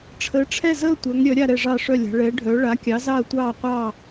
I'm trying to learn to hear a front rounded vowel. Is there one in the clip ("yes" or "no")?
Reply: yes